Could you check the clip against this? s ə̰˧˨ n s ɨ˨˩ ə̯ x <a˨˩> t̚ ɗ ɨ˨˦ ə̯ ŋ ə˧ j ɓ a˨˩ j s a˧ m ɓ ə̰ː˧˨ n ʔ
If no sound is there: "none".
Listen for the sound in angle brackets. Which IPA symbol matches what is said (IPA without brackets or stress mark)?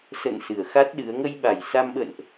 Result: a˦˥